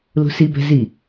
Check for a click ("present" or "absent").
absent